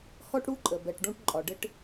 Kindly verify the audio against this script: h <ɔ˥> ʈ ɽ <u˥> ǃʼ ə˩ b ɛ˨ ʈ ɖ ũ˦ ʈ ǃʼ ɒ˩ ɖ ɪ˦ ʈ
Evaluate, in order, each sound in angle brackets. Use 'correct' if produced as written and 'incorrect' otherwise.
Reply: correct, correct

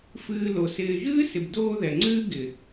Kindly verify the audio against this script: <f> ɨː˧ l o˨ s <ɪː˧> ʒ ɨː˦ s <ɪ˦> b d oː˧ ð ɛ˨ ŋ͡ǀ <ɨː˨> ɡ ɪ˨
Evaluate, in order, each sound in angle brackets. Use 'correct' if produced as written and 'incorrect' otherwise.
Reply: correct, correct, incorrect, incorrect

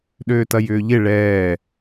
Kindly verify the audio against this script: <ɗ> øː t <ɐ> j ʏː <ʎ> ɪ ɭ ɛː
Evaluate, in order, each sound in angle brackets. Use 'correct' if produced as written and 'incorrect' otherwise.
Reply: correct, correct, correct

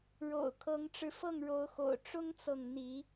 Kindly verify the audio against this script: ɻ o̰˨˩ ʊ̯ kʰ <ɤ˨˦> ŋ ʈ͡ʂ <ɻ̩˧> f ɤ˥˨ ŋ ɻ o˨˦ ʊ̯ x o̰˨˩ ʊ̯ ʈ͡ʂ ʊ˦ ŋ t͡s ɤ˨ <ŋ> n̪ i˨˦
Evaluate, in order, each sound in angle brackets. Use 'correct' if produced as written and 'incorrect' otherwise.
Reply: correct, correct, correct

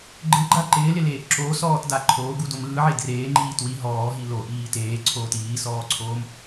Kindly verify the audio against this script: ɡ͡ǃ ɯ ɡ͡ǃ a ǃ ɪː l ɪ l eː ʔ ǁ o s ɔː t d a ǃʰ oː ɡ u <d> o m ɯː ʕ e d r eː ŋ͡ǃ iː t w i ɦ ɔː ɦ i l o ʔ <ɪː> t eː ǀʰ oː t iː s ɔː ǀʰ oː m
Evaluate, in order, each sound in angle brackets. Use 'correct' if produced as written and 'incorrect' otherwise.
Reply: correct, incorrect

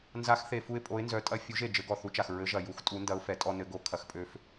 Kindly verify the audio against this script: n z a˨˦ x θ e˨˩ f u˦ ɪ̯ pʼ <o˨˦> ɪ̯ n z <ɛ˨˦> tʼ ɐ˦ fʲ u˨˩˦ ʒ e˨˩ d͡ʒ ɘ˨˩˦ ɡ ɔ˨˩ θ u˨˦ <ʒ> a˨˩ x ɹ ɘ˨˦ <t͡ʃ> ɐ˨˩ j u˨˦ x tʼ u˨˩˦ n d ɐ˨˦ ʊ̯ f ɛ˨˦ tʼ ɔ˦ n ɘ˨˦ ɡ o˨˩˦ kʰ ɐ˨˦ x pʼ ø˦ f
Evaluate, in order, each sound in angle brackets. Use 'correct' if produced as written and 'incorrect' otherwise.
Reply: correct, incorrect, incorrect, incorrect

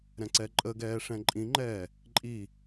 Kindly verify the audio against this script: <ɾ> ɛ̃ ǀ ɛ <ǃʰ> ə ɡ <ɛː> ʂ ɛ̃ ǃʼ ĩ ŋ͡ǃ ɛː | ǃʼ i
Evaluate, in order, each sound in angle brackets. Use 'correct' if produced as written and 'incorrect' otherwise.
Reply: correct, incorrect, correct

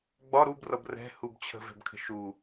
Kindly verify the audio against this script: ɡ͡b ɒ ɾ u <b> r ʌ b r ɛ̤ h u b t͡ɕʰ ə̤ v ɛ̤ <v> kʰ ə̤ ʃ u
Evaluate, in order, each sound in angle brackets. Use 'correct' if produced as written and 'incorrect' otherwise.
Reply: correct, incorrect

